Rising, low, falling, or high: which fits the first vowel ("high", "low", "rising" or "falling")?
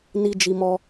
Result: high